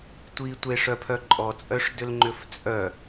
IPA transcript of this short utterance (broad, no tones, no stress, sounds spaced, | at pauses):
tʷ i tʷ e ʂ œ pʰ œ ǃʼ ɔ t͡sʼ œ ʂ d ʏ l ŋ͡ǃ ʏ f t͡sʼ œ